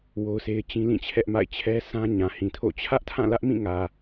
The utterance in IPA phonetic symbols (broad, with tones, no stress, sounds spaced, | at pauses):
w o˦ ʊ̯ s e˦ ɪ̯ t͡ɕ ĩ˦ l ĩ˦˨ t͡ɕʰ ɛ˦ ʔ m a̰˦˨ ɪ̯ t͡ɕʰ ɛ˦ sʰ ã˦ ɲ ã˨ h ĩ˨ tʰ o̰˦˨ t͡ɕʰ ä˦ ʔ tʰ ã˦˨ l ä˦ ʔ m ĩ˦˨ ŋ ä˨